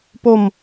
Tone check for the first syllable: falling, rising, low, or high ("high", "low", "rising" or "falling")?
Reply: falling